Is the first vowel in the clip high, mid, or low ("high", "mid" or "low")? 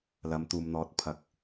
low